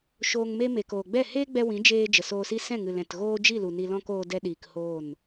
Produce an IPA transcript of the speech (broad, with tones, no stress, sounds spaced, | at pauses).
ʃ oː˨ ŋ m e˧ m e˨ k oː˨ ɡ͡b ɛ˦˨ h eː˦ ɡ͡b ɛ˧ w ĩ˨˦ d͡ʒ eː˧ d͡ʒ ə˨ s oː˧ s i˦ s ɛ̃˦˨ ŋ ɨ˨ l ɛ̃˨ t ɣ oː˦ d͡ʒ i˦˨ l u˨ n i˧ l ɔ̃˦ k oː˧ d ɛ˧ ɗ iː˨ k h oː˦˨ n